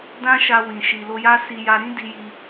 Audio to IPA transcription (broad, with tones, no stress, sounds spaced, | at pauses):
d ã˦ ʃ a˧ w ĩ˨ ʃ i˨ l o˧ j a˦ s i˧ j a˧ ɾ ĩ˦ d i˧ j i˧